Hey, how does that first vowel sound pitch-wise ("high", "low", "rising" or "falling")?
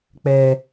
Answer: low